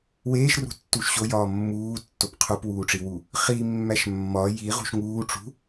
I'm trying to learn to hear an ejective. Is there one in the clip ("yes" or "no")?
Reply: no